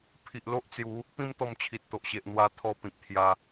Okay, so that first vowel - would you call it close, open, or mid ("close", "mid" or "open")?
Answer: close